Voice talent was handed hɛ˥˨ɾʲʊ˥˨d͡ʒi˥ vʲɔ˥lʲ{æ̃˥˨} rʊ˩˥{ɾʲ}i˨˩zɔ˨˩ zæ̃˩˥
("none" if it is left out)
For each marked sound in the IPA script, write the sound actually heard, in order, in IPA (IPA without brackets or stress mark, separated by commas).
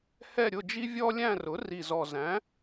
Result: æ̃˥˨, r